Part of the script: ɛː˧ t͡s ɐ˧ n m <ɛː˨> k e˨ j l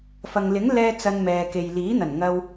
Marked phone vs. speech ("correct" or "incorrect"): correct